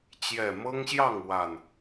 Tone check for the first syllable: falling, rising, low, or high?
low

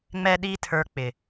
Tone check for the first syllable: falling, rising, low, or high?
high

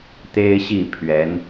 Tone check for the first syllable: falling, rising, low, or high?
high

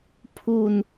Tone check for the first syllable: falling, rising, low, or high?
falling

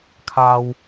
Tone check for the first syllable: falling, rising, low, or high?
high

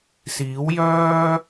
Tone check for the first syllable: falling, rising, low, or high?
rising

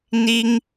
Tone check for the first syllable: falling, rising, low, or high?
high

